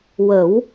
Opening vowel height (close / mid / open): mid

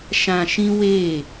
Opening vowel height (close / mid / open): open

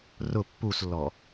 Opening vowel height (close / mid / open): close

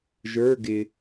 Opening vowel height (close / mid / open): mid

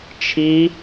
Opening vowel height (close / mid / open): close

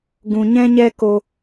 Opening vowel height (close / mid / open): close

